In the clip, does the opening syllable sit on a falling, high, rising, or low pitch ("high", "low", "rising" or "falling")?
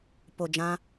low